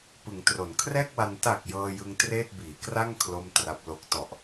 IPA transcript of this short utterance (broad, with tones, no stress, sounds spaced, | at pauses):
p ɯ˩˦ ŋ t r o˩˦ n kʰ r ɛː˥˩ k̚ w a˧ n t a˨˩ k̚ j ɤː˧ j ɯ˧ ŋ t r eː˥˩ t̚ b iː˩˦ k r a˥˩ ŋ kʰ l o˥˩ m t r a˦˥ p̚ l o˦˥ k̚ t ɔ˨˩ ʔ